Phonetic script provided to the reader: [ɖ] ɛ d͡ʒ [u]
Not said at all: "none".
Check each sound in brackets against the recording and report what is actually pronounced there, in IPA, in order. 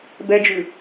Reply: b, ʉ

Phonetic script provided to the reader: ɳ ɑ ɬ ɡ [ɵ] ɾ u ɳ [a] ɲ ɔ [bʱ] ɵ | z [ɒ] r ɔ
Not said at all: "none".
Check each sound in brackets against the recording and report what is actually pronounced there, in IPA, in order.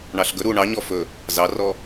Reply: ɵ, ɑ, f, ɑ

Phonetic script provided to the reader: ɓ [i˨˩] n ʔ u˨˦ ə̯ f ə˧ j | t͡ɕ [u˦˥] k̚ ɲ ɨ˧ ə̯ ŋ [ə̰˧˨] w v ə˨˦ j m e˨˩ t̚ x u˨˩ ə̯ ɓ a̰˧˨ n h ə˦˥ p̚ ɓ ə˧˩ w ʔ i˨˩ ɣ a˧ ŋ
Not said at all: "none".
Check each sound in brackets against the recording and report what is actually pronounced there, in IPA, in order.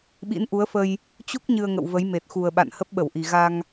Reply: ḭ˧˥, u˦˥, ə̰˧˨

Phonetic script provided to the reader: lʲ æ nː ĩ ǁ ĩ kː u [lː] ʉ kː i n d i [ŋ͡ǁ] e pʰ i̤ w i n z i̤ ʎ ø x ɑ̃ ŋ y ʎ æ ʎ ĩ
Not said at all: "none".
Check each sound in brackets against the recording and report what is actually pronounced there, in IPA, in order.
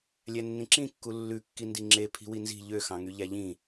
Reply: lː, ŋ͡ǁ

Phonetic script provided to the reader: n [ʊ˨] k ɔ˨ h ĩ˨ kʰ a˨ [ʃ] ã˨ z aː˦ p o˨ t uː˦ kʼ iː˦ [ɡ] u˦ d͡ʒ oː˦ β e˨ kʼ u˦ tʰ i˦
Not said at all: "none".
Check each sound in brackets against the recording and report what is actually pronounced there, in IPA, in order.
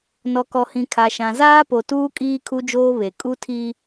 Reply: ɔ˨, ʃ, kʰ

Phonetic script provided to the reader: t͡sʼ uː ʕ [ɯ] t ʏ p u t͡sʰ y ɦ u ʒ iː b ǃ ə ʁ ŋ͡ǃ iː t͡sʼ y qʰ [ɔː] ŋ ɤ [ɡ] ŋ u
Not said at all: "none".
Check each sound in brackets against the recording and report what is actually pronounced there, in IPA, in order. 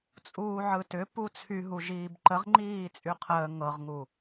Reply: ɯ, əː, ʁ

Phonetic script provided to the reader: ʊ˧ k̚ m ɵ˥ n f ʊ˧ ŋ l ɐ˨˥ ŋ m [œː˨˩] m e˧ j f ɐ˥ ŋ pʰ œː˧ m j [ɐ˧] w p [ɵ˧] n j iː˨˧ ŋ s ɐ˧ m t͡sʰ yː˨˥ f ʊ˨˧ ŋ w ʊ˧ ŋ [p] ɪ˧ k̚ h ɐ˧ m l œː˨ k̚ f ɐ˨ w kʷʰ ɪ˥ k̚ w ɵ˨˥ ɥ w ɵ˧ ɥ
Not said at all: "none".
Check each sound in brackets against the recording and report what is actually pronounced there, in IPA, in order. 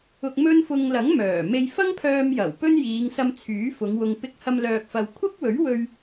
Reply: œː˨˩, ɐ˨˩, ɵ˥, p

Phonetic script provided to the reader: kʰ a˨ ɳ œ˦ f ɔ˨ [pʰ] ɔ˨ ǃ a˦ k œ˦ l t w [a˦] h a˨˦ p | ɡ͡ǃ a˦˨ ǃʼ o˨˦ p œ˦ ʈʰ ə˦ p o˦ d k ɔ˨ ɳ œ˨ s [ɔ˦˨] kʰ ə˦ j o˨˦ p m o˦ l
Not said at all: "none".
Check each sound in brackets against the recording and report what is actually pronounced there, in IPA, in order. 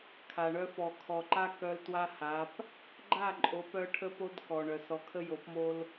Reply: kʰ, a˦, ɔ˨

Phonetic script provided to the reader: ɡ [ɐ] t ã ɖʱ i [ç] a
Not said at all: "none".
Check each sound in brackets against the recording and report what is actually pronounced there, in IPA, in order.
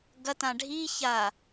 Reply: ɐ, ç

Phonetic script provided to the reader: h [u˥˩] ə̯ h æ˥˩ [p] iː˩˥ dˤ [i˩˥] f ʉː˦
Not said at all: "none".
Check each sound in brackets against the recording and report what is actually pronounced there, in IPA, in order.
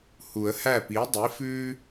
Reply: u˨˩˦, p, i˩˥

